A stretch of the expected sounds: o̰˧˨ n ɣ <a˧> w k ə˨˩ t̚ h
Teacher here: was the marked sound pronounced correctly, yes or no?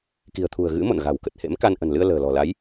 no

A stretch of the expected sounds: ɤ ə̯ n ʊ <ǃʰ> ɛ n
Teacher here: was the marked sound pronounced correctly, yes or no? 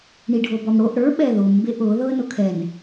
no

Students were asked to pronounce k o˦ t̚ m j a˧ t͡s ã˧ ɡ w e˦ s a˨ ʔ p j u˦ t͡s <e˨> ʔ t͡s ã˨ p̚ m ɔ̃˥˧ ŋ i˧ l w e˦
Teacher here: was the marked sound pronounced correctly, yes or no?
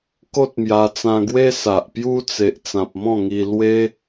yes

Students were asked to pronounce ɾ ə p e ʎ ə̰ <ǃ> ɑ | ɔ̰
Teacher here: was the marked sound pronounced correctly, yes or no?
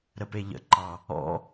yes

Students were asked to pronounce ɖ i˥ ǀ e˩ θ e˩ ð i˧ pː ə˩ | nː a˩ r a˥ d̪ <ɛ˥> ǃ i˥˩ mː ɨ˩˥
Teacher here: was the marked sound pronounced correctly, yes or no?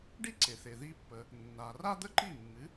no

